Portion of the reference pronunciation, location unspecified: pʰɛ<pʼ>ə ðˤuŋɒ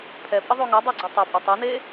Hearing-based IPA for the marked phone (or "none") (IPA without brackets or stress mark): pʼ